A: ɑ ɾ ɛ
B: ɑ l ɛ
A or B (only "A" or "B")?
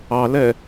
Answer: B